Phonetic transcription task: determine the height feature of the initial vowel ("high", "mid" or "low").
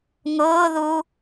high